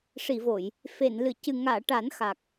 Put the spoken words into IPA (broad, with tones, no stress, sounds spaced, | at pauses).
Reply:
ʂ i˨˩˨ v o˨˩˨ j | f e˨˩˨ n l ɨ˨˩˨ c ɨ˨˩ ŋ aː˨˩˨ ʈ a˨˩˦ n x a˨˩ k̚